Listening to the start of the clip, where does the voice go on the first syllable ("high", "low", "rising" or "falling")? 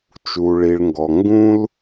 low